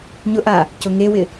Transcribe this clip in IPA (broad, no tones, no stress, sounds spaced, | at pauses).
ɲ ʊ ʔ a | c ʊ ŋ e w ɪ